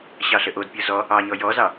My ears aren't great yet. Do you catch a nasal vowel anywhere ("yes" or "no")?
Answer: no